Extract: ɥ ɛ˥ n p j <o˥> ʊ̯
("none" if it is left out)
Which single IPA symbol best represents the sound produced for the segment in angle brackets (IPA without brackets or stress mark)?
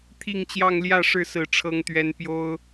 o˥